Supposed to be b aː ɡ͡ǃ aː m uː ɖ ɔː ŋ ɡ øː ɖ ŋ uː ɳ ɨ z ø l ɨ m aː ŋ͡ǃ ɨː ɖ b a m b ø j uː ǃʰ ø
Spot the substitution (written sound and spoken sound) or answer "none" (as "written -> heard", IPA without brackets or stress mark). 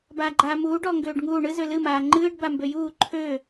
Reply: none